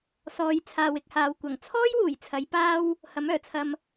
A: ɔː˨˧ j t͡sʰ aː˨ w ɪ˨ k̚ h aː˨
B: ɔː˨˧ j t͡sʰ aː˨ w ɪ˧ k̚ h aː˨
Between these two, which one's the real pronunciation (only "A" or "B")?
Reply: A